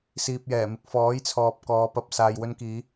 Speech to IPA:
s iː˨ p̚ j ɛː˨˩ m ɪ˨ k̚ f ɔː˨˥ j t͡sʰ ɔː˨ p̚ k ɔː˨˧ p ɐ˧ p̚ s aː˨ j w ɵ˧ n k iː˨˧

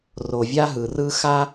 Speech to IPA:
r o˨ vʲ a˦ ɦ ɯ˨ r ɯ˦ x a˦

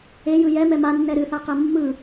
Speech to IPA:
e j ɯ j ɛ m ɛ m a nː ɛ ɾ ɨ θ a q ɛ mː ɯ

